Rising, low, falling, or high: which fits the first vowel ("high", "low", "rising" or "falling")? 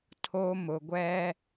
high